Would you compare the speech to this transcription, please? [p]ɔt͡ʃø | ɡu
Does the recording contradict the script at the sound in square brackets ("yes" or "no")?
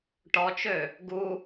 yes